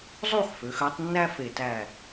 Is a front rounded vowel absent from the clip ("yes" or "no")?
no